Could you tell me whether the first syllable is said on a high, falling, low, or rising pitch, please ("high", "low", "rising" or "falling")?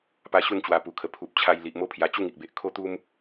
high